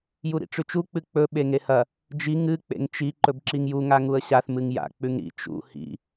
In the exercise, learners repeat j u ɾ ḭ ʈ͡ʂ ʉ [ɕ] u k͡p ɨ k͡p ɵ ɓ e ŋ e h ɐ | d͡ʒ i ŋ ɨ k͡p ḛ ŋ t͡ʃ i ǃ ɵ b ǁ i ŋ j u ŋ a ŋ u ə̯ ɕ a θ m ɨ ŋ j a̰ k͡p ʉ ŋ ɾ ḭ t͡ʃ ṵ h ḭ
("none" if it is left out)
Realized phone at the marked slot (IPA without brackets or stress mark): t͡ʃ